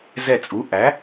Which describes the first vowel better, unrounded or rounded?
unrounded